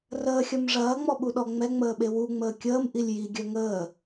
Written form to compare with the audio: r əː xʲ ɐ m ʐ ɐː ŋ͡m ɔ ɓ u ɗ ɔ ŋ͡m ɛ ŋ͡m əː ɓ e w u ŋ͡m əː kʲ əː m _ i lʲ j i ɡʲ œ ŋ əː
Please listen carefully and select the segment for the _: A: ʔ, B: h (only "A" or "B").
A